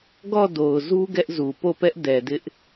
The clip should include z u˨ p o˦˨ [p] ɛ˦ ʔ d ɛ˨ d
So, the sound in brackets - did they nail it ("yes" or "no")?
yes